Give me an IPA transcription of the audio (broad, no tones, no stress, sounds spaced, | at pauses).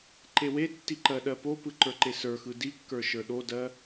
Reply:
ǃ e w e tː i ǃ ɜ ɗ ɜ p o p ɯ ǃ ə˞ ǃ e s ə˞ x ɯ d i kː ə˞ ʃ ə˞ ɗ o d ɜ